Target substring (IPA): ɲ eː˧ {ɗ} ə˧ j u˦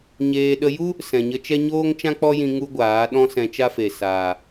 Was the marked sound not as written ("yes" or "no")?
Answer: no